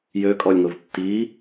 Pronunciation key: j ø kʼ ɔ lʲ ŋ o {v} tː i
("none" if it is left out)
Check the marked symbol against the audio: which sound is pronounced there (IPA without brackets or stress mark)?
v